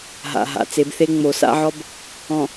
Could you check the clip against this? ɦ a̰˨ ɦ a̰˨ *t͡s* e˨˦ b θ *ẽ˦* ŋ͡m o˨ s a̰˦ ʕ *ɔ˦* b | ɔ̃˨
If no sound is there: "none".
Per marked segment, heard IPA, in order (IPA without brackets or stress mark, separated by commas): t͡s, e˦, ɔ˦